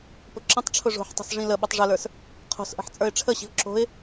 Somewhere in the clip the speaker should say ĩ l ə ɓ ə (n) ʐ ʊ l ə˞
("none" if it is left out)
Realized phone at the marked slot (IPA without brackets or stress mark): tˤ